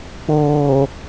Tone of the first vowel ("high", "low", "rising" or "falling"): low